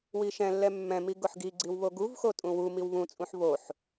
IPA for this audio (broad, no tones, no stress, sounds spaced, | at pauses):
w i ʃ ɛ̃ lː ɛ mː ɛ̃ m i ɡ ʊ ħ ɡ i ɡ͡ǀ i w β o ɡ u v x o tʼ ũ w u m i w β ũ t͡sʼ ũ ħ β o ħ